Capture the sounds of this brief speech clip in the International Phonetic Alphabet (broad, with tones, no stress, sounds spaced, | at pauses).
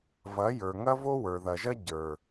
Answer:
v ɐ˨˦ j ə˞˨ ŋ ɐ˦ v o˦ w ə˞˨ ð ɐ˨ ʒ ɐ˦ ɟ ə˞˨